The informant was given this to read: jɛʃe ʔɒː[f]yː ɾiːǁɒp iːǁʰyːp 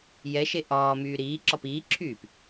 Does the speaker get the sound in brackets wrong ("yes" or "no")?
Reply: yes